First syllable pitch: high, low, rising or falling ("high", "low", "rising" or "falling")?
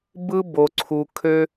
high